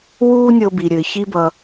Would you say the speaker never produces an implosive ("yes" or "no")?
yes